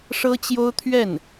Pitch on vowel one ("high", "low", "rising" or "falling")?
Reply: high